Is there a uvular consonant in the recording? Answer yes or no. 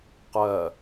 yes